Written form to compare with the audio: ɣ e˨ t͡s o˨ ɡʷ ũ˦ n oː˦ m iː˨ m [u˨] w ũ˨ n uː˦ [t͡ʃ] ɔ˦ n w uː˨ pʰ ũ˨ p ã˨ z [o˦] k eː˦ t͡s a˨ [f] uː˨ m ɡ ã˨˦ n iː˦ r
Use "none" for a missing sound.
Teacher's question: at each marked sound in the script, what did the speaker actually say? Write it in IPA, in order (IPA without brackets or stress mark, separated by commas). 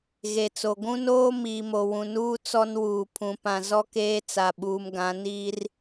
o˨, t͡s, ɔ˦, ɓ